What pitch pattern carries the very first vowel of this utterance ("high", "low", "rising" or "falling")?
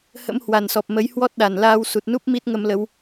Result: rising